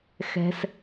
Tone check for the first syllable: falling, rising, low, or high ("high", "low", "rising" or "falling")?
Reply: low